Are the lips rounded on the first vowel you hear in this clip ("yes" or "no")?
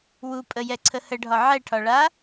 yes